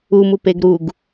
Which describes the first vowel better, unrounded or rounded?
rounded